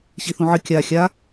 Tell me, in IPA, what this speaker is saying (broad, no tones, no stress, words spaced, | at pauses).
ɕiθũʕɨ kʲa xʲa